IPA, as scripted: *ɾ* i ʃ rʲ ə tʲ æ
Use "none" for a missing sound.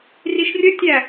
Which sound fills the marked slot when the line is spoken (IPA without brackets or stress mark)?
r